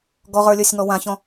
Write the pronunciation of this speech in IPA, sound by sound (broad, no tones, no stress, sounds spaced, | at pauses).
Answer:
ɡ ɔ ʁ ə˞ lʲ ə˞ sʲ ŋ ɔ w ã ç ɔ̃